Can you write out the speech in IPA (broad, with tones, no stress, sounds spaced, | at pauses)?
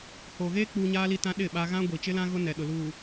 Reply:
h oː˨ ɣ eː˦ k͡p uː˦ ɲ a˦ l i˦ t ã˦ ɗ ɪ˦˨ ɓ a˦ ɣ ã˦ ɡʷ i˨ t͡ʃ ɪ˦ l ã˦ ɣ ʊ˦ n ɛ˨ ɗ ʊ˨ l uː˨